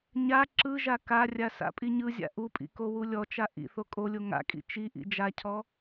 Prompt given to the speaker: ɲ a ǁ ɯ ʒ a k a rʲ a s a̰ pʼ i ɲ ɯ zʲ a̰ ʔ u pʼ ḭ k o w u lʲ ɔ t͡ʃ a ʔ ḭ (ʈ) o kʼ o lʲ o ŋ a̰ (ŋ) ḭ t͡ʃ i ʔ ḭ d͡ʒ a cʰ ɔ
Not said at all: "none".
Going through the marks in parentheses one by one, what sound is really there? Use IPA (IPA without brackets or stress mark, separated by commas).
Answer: θ, kʼ